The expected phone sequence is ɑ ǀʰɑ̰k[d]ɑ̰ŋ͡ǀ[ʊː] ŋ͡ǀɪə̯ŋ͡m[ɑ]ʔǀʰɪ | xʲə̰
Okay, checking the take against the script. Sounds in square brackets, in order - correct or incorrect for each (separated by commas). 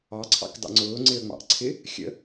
correct, correct, incorrect